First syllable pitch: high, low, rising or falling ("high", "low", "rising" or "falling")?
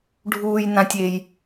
low